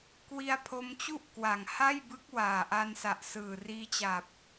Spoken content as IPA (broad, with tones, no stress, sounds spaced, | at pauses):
k w i˧ a̯ pʰ o˧ m t͡ɕ u˥˩ ʔ k w a˨˩ ŋ h a˥˩ j b ɯ˦˥ k̚ w aː˨˩ ʔ a˧ n s a˨˩ ʔ s ɯː˨˩ r iː˧ t͡ɕ a˨˩ p̚